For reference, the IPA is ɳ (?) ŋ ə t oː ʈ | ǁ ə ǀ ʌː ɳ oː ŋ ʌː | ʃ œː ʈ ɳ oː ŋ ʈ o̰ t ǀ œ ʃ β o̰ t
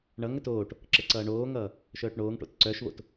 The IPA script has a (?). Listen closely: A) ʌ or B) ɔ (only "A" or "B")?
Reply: A